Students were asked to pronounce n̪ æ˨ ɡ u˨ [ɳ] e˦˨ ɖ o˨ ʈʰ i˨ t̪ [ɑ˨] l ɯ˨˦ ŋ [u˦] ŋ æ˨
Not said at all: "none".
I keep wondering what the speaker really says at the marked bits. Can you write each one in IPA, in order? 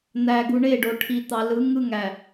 ɳ, ɑ˨, ɯ˦

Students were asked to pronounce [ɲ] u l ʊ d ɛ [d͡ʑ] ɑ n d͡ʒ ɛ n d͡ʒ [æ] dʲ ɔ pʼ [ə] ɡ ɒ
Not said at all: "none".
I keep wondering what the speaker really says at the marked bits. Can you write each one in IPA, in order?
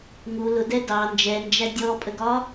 ŋ, d, æ, ə

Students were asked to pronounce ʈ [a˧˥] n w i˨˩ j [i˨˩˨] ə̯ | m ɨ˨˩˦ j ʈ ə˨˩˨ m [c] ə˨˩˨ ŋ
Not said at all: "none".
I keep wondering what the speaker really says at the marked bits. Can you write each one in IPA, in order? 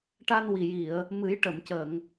a˧, i˨˩˨, c

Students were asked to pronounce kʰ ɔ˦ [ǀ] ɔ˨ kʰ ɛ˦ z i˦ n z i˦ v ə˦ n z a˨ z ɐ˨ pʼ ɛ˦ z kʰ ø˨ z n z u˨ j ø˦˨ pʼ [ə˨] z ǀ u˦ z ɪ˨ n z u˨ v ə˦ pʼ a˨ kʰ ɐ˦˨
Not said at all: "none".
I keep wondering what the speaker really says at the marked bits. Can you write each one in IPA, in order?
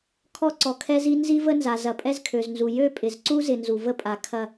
ǀ, ɪ˨

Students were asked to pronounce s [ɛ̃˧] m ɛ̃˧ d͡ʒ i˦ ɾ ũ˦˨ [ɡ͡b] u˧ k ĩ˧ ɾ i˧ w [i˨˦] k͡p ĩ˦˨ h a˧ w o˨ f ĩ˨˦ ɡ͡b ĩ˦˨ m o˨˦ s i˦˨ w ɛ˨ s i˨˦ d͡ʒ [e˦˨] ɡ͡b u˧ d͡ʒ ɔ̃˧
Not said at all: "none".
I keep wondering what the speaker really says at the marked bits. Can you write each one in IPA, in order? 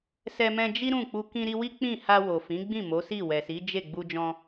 ɛ˧, k͡p, i˦, e˦˨

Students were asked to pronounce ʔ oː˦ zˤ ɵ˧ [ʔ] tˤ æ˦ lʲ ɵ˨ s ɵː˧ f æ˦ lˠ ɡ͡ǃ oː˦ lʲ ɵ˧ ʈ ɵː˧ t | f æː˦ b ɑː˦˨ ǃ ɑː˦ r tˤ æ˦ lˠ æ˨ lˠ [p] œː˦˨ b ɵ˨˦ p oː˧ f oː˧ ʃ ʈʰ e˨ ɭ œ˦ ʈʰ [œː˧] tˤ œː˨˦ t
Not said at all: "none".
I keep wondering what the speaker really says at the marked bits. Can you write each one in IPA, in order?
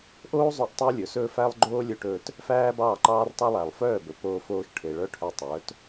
ʔ, f, œ˧

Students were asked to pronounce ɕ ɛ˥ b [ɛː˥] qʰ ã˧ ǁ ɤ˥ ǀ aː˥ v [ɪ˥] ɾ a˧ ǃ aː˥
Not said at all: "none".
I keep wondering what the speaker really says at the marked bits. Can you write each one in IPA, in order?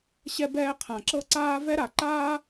ɛː˥, ɛ˥

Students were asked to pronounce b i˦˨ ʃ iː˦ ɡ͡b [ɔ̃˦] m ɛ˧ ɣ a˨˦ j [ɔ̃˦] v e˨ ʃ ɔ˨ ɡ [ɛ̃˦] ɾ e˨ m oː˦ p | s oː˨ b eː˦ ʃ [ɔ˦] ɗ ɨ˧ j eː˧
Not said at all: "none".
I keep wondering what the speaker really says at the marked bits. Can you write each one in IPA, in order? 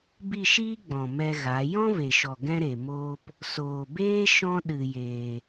ɔ̃˨, ɔ̃˦, ɛ̃˦, ɔ̃˦

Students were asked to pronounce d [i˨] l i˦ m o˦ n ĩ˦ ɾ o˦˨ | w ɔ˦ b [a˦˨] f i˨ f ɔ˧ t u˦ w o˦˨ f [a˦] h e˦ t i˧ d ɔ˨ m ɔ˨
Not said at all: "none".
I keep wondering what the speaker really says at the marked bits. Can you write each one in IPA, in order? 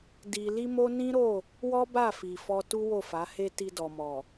i˧, a˦˨, a˨˦

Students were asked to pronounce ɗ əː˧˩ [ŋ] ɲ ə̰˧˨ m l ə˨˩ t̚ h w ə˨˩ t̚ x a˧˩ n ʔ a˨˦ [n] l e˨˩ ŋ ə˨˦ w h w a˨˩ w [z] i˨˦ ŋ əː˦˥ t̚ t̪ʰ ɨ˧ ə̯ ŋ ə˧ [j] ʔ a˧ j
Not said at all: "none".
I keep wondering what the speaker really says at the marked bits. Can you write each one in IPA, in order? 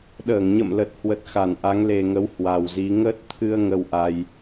ŋ, ŋ, z, w

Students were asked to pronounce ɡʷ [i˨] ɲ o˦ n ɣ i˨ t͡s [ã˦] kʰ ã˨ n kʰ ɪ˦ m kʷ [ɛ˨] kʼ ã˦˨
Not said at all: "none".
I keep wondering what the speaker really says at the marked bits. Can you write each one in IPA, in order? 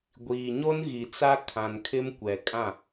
iː˨, a˦, ɛ˨

